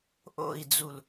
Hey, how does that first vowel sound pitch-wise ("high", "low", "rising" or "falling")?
falling